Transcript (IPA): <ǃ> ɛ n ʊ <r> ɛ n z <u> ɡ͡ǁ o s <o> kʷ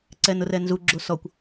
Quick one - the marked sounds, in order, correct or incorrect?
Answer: incorrect, correct, correct, incorrect

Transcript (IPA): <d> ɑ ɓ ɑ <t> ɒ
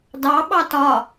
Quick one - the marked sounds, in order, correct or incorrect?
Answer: correct, correct

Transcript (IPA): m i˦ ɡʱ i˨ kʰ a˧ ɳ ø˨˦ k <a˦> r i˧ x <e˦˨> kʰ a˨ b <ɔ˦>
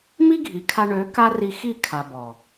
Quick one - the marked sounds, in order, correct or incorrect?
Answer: correct, incorrect, incorrect

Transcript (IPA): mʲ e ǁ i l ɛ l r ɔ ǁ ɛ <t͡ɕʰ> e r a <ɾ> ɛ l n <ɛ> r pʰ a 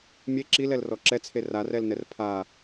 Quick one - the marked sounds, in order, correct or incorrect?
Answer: incorrect, incorrect, correct

